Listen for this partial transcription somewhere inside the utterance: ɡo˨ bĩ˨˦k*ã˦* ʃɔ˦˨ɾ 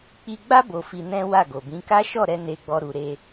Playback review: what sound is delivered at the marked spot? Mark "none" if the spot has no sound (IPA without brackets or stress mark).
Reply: a˦